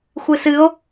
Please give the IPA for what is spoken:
xʷ ɨ s ɨ o̯

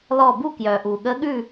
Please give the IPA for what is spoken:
l ɔ˥˨ b u˥˨ k j œ˨˩ ʔ u˨˩ ɠ ə˧˥ ɠ ʉ˥˨

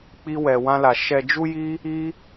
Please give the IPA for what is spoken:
k͡p i˦ w ɛ˧ w ã˦ l a˧ ʃ ɛ˧ d͡ʒ u˦ j i˦ | i˦

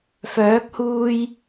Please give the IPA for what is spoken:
f œː˨˥ k̚ h uː˧ j

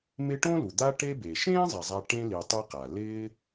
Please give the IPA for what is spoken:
m ɪ˦ ʈ õ˥ l u˩ d̪ a˦ ʈ e˦ b e˩ ʃ ẽː˥ zˤ ɛ˩ zˤ a˨ ʈ ẽ˦ l i˨ tˤ i˦ q a˩ l ɪː˦

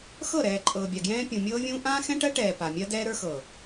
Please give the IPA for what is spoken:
x ɤ˦˨ ɾ ɛː˨ ǃʼ ɤː˨ bʲ a˨ ɡ j ɛ̃ː˦ pʲ ũ˨ mʲ ɤː˦ vʲ ũː˦ ʔ ãː˦ x ɛ̃˦ ʈ ɜ˦ ʈ ɛː˨ p a˨ mʲ ɜ˦ d ɛː˦ ɾ ə˞˦ x ɤ˨

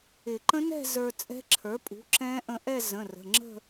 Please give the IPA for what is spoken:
ɪ˨˩˦ ǃ ə̃˦˥ n ɛ̤˥˧ z ə˞˧ t͡sʼ ɛ̤˦˥ ǁʰ ə˞˩˥ pʼ ṳ˩˥ ǁ ɛ̃˦˥ ʔ ə̃˧ ʔ ɛ˥˧ z ə̃˩˧˩ r ə̤˩˧˩ ŋ͡ǁ ə̤˥˧

